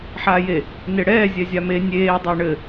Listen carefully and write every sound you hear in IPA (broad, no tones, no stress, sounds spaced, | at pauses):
ħ aː j e | n e ɽ ɛː zʲ ɛ zʲ a m e nʲ eː dˤ əː ɳ ɘ